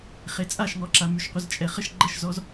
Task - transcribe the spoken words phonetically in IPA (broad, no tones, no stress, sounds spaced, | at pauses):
χ e t͡sʼ a ʃ ŋ ɔ ǁ a m y ʃ qʷ ə z t͡ʃʼ ɛ χ ə ʃ ɡ͡ǃ ə ʃ z ɔ z